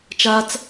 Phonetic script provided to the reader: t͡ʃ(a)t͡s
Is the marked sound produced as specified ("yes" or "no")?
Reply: yes